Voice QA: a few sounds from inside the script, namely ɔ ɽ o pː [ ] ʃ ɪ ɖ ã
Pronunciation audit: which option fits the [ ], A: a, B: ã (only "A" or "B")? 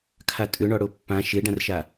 B